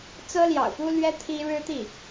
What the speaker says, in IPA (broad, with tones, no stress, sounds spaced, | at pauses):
t͡s ɤ˥ l j ɑ̰˨˩ ʊ̯ p u˥ l ɥ ɛ˥ t̪ʰ i˥ ɻ ɻ̩˥ t̪ i˥˩